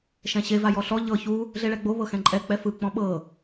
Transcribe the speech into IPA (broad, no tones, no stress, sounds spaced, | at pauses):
ʃ ɛ̃ ɕ e v a j ɔ ɬ ɔ ʎ ɤ ç u | ɮ e ɭ ɛ ɡ͡b o β ɤ x ɛ̃ ǃʼ ɛ k͡p ɛ f ɯ k͡p ɔ̃ ɓ ɤ